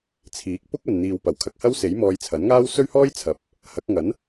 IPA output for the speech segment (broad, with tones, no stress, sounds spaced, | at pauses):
t͡sʰ iː˨˥ k̚ p ʊ˥ k̚ ɐ˨ n n̪ iː˨ w p ɐ˨˩ w kʰ ɐ˨ k̚ h ɐ˥ w s e˨˥ j m ɔː˧ j t͡sʰ ɐ˨˥ n ŋ aː˥ w s ɵ˥ ɥ h ɔː˥ j t͡sʰ ɐ˨˥ p̚ | h ɐ˨˥ k̚ ŋ ɐ˨˥ n